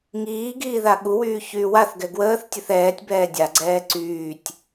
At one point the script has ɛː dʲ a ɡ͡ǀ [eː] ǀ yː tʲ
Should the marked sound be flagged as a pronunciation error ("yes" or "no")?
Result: yes